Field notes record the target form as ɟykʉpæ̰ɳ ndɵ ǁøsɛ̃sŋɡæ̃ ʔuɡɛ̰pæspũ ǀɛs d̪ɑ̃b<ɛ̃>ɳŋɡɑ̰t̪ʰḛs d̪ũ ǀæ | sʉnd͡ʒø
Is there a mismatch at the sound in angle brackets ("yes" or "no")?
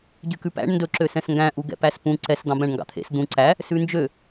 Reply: yes